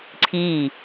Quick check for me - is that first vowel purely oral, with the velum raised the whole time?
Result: yes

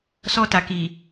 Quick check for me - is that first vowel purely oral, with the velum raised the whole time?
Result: yes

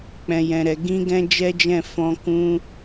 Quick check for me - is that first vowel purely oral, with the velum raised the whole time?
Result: no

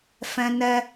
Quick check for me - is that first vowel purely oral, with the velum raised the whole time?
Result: no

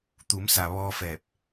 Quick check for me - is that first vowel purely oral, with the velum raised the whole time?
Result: yes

